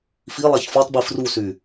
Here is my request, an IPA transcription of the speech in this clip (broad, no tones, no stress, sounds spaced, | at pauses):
f i lˠ a ç f ɔ tˤ b i f r u s y